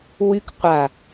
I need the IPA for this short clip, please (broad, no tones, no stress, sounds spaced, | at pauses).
w y k qʷ a